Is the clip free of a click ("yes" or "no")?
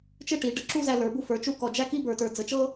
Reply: no